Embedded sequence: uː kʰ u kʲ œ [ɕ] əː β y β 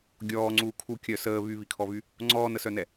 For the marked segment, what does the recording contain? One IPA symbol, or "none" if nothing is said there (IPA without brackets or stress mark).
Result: s